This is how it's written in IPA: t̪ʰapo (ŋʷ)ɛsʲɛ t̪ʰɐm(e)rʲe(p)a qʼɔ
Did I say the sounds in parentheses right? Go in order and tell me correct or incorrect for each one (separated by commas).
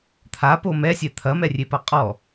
incorrect, incorrect, correct